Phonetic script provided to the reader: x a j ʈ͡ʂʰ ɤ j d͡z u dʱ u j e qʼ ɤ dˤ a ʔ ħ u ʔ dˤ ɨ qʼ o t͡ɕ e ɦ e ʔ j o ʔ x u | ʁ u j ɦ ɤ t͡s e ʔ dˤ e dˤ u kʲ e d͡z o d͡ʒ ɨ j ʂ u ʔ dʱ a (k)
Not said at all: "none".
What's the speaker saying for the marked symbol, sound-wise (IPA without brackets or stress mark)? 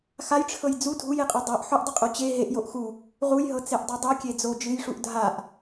ʔ